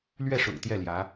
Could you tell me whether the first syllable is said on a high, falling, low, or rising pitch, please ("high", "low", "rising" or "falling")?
falling